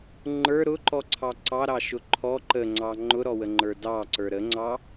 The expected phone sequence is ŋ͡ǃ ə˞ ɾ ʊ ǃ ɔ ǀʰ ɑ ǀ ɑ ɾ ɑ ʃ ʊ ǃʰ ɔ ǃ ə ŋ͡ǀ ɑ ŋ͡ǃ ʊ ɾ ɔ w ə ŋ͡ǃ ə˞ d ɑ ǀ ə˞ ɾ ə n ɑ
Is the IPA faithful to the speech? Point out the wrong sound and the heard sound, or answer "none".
n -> ŋ͡ǀ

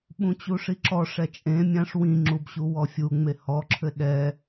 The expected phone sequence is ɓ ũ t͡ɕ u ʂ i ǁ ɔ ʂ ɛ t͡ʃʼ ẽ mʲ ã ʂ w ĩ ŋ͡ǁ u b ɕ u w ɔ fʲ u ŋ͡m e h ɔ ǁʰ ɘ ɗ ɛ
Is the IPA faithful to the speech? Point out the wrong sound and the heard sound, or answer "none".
none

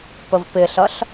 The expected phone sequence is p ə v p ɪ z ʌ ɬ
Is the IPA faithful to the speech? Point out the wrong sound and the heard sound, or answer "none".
z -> ɬ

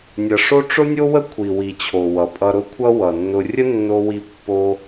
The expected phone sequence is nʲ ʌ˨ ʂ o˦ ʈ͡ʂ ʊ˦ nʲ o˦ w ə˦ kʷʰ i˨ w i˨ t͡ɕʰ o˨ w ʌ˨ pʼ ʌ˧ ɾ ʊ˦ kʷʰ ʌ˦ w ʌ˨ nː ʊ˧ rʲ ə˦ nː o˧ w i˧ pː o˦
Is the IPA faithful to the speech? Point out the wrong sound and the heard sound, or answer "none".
none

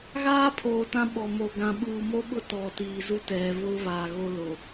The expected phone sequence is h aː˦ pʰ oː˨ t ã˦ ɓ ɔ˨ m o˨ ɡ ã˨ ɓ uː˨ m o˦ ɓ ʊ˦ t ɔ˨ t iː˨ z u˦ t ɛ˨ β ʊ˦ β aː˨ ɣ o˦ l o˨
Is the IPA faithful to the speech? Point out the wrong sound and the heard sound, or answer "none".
h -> ɣ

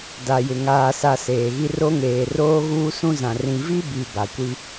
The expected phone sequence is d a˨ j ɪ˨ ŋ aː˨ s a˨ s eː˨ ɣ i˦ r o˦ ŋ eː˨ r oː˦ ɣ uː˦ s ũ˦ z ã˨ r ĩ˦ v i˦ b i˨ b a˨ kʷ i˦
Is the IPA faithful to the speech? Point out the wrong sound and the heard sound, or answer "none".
ĩ˦ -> ĩ˨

